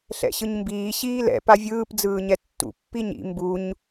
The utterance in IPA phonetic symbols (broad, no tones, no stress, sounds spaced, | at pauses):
ɬ ɛ̰ ɕ ɯ ɲ m b iː ɕ iː l ɛ̰ p a vʲ ɯː p d͡z ɯː ɲ ɛ tː ṵ pː i ɲ ḭ m b u ɲ